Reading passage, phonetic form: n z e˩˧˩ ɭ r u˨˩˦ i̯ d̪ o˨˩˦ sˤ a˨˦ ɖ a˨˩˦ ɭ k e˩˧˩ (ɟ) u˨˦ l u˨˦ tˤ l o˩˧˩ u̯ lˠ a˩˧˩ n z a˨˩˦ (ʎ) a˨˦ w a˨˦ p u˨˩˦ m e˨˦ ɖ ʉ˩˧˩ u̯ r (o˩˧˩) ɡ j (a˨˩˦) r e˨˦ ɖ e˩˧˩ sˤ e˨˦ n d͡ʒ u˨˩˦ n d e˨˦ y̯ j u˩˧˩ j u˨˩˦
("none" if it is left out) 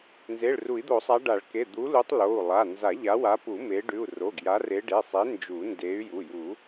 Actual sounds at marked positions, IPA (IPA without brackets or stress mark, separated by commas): d̪, ʎ, o˩˧˩, a˨˦